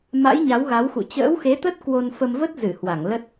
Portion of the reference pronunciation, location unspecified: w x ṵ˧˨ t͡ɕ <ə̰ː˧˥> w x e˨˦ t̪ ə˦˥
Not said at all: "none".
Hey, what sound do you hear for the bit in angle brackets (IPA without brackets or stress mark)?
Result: ə̰ː˧˥